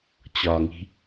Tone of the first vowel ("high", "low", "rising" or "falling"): low